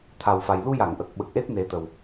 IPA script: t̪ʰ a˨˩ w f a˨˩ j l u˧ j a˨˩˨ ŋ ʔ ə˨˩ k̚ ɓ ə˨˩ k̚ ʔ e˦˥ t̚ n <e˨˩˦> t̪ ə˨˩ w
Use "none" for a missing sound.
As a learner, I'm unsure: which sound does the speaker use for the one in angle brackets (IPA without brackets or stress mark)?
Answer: e˨˩˦